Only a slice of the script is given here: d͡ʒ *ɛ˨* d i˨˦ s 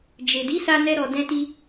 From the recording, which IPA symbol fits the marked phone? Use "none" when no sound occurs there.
e˨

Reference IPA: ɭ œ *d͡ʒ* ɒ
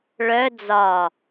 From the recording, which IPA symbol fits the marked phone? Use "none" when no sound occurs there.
d͡z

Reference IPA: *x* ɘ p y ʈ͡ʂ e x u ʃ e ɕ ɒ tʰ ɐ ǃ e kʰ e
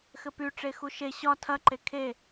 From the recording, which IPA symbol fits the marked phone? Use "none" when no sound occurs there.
x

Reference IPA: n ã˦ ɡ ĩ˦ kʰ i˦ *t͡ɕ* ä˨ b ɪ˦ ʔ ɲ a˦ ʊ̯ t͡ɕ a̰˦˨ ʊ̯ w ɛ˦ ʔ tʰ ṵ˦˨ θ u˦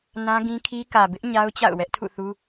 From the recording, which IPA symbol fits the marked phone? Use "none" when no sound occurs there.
k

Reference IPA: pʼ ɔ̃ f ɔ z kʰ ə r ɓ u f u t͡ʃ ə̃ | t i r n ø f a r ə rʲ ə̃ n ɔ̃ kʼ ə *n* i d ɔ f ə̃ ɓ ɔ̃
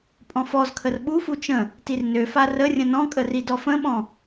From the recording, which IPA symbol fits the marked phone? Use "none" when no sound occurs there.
r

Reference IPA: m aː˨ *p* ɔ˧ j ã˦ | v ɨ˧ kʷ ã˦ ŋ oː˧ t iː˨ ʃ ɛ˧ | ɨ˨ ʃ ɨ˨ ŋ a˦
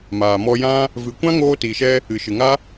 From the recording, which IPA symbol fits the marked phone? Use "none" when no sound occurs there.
m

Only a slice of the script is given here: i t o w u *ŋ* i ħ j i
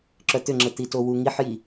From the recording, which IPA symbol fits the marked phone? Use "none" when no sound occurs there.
ŋ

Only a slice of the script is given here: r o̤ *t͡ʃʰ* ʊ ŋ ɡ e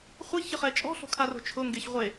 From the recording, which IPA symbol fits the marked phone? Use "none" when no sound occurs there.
t͡ʃʰ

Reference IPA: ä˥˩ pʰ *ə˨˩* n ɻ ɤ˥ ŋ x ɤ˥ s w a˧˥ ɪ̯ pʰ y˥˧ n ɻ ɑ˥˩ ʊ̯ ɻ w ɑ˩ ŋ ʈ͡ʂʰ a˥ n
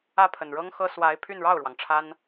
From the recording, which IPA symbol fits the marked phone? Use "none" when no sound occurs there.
ə˨˩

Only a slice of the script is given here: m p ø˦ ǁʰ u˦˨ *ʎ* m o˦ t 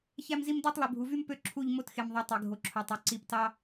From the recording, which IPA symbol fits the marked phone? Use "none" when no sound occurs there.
ʎ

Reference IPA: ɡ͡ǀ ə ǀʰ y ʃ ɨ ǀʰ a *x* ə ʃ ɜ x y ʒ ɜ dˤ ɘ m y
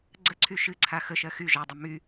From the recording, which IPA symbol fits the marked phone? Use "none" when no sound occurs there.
x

